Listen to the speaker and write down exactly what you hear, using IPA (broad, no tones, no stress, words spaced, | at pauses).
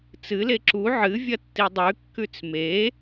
t͡sɨle ǁu ʕɨ vʲɐtːidˤʉ kːʉt͡sme